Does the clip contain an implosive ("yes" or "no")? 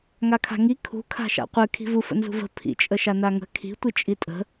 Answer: no